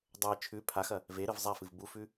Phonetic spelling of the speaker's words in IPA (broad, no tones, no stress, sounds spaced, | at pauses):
dˤ ɵ j t͡ʃʰ ʉ pʰ a x ɐ | v e ɾ ɨ v zˤ a f ɨ v b u f ʉ